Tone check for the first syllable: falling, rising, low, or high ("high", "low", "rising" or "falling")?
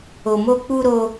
low